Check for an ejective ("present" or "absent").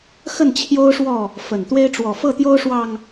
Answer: absent